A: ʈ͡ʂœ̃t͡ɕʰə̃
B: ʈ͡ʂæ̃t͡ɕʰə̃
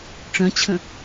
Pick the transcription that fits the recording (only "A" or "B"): A